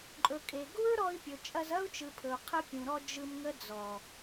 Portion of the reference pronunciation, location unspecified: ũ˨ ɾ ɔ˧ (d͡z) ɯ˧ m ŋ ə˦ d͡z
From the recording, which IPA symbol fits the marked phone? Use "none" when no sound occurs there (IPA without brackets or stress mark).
d͡ʒ